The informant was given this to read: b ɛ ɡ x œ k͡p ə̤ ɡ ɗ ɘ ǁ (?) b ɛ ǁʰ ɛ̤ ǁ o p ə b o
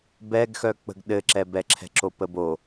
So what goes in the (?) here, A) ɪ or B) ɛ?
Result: B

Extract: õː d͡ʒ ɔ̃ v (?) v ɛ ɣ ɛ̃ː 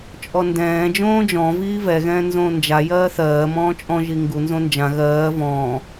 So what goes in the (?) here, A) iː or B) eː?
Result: A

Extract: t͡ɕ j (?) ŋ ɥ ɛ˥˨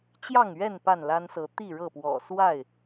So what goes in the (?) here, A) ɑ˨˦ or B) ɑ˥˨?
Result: B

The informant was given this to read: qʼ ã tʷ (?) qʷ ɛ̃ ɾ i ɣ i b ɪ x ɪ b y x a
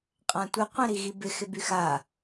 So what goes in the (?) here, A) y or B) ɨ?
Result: B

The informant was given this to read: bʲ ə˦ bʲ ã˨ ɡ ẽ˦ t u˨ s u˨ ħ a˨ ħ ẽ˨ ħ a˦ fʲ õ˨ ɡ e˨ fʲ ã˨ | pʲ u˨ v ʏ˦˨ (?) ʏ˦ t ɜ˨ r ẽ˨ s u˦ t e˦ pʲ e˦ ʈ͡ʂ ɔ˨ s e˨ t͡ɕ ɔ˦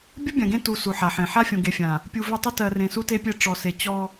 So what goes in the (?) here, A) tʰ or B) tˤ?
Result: B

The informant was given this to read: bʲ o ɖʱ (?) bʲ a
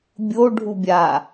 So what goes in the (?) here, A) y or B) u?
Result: B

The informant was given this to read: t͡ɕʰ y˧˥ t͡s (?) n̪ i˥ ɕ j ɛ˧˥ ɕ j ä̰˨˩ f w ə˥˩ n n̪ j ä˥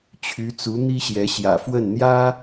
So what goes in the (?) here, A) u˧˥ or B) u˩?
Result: A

